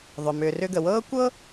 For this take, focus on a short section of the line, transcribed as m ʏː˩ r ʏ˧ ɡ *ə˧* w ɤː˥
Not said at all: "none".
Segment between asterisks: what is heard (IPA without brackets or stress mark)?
ə˩